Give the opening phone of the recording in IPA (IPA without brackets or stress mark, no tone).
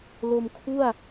l